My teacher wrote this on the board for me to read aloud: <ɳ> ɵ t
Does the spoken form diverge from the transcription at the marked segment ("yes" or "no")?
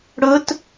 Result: yes